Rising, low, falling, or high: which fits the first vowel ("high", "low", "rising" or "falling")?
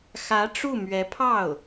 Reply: rising